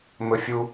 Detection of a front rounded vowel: absent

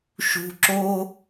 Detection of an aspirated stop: absent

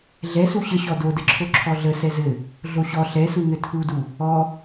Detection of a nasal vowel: absent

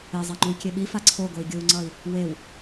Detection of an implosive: present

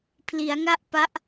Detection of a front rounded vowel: absent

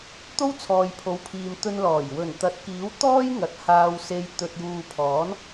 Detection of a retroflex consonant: absent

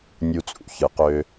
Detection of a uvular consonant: present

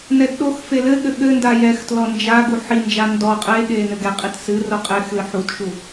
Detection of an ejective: present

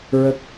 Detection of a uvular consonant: absent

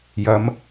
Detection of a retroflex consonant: absent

